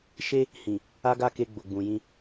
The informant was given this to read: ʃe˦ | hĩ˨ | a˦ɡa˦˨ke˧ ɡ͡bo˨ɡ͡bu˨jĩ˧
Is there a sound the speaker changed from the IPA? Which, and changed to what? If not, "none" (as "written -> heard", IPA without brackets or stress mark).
u˨ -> ũ˨